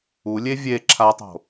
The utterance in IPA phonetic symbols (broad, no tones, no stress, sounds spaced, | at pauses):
u lʲ e vʲ e ǁʰ a tˤ o̤